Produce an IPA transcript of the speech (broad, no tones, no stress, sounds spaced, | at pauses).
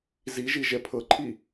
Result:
z i ʒ i ʒ ɛ pʰ ɤ ǃʰ i